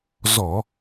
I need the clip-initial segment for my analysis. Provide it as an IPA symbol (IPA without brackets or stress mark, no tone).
z